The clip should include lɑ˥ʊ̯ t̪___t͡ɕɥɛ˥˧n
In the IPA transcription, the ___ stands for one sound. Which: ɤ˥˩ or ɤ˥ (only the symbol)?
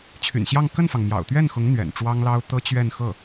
ɤ˥